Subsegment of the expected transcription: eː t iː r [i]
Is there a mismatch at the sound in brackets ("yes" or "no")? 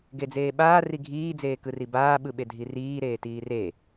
yes